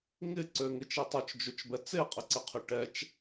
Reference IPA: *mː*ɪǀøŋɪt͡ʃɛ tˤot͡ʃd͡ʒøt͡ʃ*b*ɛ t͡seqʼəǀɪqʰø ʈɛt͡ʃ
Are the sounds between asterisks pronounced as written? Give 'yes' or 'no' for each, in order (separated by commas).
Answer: no, yes